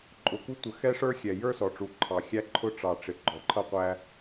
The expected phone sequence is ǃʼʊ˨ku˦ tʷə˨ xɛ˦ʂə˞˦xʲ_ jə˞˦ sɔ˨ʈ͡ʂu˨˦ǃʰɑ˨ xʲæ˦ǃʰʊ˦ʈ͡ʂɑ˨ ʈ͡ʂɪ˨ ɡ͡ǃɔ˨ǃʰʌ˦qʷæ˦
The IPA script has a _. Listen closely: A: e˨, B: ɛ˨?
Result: B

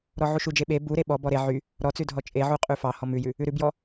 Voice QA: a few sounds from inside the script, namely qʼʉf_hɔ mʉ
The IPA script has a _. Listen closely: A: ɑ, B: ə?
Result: A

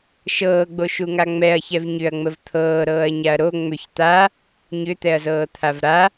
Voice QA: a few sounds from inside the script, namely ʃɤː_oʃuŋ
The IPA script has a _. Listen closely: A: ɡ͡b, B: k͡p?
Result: A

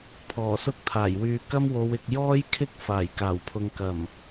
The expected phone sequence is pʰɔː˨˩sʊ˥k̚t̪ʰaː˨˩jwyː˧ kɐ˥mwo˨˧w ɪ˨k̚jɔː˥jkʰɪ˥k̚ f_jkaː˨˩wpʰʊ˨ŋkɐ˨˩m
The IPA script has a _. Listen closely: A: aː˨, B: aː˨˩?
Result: B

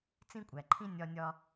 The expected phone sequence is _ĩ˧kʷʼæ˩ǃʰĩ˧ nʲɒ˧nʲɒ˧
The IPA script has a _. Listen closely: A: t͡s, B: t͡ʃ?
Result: A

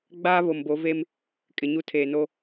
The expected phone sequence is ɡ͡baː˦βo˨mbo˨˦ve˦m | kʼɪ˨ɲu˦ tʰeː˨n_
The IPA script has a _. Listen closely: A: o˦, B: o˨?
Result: A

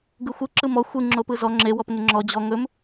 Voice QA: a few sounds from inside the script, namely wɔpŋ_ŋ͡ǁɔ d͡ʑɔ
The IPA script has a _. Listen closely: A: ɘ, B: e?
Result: B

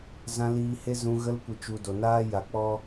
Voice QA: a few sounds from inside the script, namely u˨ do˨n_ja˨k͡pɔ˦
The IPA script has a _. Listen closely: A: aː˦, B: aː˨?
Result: A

